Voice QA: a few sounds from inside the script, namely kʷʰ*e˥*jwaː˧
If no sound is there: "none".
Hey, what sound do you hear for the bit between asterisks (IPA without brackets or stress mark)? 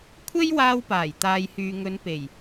e˥